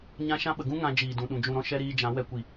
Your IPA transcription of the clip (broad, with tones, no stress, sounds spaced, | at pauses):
ɲ ã˦ ʃ ã˦ ɓ ə˨ ɡ ũ˦ ŋ ã˧ d͡ʒ iː˨ d ũ˨ ɗ ũ˨ d͡ʒ ũ˨ ɾ ɔ̃˧ ʃ ɛ˧ ɾ iː˧ d͡ʒ ã˨˦ w ɛ˧ kʷ i˨